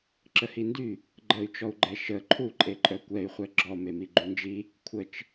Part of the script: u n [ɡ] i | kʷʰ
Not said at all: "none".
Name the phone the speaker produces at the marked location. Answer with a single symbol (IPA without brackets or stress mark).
d͡ʒ